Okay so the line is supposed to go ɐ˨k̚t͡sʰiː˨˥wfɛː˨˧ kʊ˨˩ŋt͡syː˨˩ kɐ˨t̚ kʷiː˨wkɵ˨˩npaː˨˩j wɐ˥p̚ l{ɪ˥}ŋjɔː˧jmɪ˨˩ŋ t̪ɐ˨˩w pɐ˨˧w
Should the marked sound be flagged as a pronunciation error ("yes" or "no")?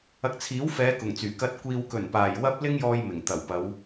no